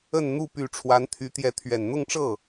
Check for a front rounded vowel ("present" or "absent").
present